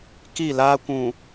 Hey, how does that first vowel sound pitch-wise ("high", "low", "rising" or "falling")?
falling